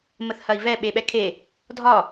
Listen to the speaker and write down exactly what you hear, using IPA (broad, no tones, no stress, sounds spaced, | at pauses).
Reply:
m ə θ h ɐ i̯ v ɛ ɓ e ɓ ɛ kʰ e | dʱ ɒ